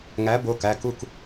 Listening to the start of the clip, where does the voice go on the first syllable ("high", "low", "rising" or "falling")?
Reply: rising